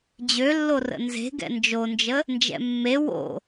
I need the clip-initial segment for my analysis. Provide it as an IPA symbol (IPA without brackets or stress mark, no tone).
d͡ʑ